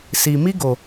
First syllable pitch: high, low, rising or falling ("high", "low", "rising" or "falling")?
low